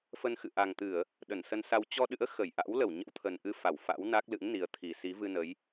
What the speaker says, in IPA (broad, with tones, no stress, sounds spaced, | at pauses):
f ə˧ n x ɨ̰˧˨ ʔ a˨˩ ŋ t̪ ɨ˧˩˨ ə̯ | ɗ ə˧˩ n s ə˧ n s a˧ w t͡ɕ ɔ˧ ɗ ɨ̰˧˥ ə̯ x ə˧˩ j ʔ a̰˧˥ w l ə˧˩ w ɲ ə̰˧˥ w t̪ʰ ə˨˩ n ʔ ɨ˧ f a˧˩ w f a̰˧˥ w n a˦˥ k̚ l ɨ̰˧˥ ŋ n i˨˦ ə̯ t̪ʰ i˨˩ s i˨˦ v ɨ˧ n ə˨˦ j